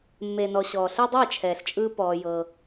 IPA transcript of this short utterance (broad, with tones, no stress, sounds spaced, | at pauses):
mː e˨ n ɔ˨ ɕ ɔː˨ ɬ ɯ˦ dˤ eː˦˨ t͡ʃʰ ɛː˨ ɬ t͡ʃʼ ɯː˧ p ɔː˧ j ɤ˧